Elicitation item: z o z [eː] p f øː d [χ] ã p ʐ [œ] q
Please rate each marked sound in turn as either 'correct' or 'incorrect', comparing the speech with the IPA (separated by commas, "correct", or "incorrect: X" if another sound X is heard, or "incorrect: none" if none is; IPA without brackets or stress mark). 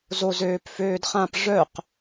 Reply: incorrect: øː, correct, correct